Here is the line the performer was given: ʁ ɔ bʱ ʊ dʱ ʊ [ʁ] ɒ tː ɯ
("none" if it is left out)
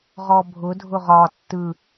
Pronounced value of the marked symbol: ʁ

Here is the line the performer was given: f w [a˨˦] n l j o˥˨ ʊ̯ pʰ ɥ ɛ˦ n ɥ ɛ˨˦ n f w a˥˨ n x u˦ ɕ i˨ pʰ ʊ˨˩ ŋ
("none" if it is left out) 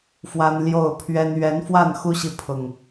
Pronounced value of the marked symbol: a˦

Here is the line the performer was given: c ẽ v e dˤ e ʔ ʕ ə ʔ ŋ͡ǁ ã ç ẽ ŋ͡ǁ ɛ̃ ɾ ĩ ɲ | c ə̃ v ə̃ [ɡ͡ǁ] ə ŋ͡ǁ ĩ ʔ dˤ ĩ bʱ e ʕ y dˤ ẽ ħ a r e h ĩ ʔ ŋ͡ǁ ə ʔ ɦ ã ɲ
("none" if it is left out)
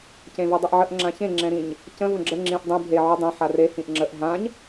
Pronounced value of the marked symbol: ɡ͡ǁ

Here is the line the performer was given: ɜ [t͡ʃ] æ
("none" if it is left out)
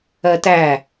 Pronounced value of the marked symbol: t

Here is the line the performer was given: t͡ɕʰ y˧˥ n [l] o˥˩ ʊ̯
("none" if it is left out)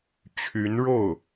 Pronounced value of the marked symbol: ɻ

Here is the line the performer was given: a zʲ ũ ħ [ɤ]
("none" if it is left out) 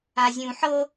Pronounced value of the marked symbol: ɤ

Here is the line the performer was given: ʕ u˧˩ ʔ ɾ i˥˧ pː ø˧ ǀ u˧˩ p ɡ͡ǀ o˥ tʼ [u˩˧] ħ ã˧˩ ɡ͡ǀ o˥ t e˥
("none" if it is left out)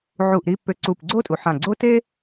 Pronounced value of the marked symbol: u˩˧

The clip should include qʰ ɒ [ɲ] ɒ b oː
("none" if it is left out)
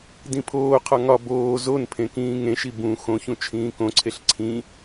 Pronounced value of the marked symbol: ŋ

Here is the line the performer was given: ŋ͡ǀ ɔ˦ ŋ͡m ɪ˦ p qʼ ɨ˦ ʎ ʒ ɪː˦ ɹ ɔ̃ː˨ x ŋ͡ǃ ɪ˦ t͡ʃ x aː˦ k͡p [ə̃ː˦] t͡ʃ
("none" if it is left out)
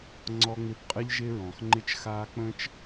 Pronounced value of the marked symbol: ə̃ː˦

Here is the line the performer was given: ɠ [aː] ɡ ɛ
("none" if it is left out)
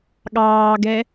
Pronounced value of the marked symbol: ɑː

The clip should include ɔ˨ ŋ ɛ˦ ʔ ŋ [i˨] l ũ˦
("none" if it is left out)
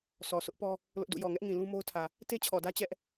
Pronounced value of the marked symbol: ĩ˨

